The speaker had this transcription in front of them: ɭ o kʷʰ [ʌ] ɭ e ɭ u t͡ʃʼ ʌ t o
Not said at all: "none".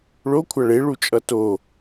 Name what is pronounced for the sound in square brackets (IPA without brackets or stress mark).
a